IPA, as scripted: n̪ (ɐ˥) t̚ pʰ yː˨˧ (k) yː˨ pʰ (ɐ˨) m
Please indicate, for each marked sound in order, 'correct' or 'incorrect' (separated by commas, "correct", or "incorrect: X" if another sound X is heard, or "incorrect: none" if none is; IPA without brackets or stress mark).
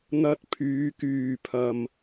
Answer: incorrect: ɐ˧, correct, correct